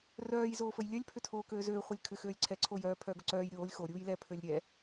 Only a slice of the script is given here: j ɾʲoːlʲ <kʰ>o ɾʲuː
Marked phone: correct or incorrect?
incorrect